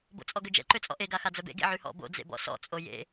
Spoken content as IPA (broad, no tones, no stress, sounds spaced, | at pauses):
b o̰ t͡sʼ ɔ ɡ ø d͡ʒ ɛ̰ ǃ ø t͡sʼ ɔ̰ ʔ e ɡ a x a d͡z œ b ḛ ɡ ḛ ʕ y h ɔ̰ b o̰ d͡z ḛ b ɔ̰ s ɔ̰ t͡sʼ o j ḛ